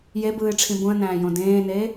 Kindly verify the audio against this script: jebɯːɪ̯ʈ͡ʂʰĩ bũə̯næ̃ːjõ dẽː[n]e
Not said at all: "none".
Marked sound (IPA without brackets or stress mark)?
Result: n